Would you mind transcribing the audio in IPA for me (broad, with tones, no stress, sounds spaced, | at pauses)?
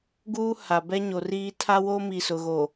ɡ uː˦ h a˨ b ɛ˦ ɲ o˨ r iː˦ tʰ a˦ w o˦ m i˨ s ʊ˨ ɣ o˨